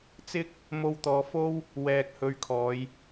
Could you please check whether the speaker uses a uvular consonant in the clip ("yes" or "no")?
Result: no